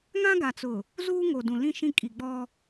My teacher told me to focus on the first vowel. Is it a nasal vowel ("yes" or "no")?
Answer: yes